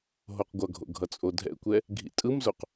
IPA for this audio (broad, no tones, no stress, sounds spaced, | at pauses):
ɦ o q ɡʷ ʌ ɡʱ o̰ ɡʱ ʌ t͡sʼ o dʱ ɛ̰ kʷ ɛ | ɡʱ ḭ tʼ ɯ m z o q